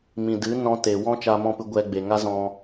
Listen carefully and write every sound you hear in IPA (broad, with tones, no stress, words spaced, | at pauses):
mĩ˨dɨ˨˦ nɔ̃˧te˨ wɔ̃˦ t͡ʃa˧mɔ̃˦˨pɨ˧ ɡʷɛ˧ɡ͡be˨ ŋa˦zɔ̃˧